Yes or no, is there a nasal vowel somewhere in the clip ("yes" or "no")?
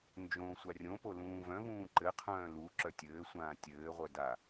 yes